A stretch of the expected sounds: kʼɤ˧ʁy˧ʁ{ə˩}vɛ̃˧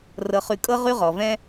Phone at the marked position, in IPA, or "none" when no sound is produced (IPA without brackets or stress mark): ɔ˩